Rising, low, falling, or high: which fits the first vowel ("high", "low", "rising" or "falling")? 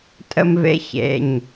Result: high